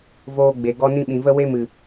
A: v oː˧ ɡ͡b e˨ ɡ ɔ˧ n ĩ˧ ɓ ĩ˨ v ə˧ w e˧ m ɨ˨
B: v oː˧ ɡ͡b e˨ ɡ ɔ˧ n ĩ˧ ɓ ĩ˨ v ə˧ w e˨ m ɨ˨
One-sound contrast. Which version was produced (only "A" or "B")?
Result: A